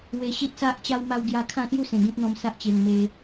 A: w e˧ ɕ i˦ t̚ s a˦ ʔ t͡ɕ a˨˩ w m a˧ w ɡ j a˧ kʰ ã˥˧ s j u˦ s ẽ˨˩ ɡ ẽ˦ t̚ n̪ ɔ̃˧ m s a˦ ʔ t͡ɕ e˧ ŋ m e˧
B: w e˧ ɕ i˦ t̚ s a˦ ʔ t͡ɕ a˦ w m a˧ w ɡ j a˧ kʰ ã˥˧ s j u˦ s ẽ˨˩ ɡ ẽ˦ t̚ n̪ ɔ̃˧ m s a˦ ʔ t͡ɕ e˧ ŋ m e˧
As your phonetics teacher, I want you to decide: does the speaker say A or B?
B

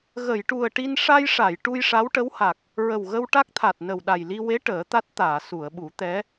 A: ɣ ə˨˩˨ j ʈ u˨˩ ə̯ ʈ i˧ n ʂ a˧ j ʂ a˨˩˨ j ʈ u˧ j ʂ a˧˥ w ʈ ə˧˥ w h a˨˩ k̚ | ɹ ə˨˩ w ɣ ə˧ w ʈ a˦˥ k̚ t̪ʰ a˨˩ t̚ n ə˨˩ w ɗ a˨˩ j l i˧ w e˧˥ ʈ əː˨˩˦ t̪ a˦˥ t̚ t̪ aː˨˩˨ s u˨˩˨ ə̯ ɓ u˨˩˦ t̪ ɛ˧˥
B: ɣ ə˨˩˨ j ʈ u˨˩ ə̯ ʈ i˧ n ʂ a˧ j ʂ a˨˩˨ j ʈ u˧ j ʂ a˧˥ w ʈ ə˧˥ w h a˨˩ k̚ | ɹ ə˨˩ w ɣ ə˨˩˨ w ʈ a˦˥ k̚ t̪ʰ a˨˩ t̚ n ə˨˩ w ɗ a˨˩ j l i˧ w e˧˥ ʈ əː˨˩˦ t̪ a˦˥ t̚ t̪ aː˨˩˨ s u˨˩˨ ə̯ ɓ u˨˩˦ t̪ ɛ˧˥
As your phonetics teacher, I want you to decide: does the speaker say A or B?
A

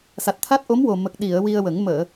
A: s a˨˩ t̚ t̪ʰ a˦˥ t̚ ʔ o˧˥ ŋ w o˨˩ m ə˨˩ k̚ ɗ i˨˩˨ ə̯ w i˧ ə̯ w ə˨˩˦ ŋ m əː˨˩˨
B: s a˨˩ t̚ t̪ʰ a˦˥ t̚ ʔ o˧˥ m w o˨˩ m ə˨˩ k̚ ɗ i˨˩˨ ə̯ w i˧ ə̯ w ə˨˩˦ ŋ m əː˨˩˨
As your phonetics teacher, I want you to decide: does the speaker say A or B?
B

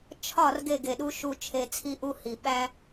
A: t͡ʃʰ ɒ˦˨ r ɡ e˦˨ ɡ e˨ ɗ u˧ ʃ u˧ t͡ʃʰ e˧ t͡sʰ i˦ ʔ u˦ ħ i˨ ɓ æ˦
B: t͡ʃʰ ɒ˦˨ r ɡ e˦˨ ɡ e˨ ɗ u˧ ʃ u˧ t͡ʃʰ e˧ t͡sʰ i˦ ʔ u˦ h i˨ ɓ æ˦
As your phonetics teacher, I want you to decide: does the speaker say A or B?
B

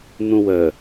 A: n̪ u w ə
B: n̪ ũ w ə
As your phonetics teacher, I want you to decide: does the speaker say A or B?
B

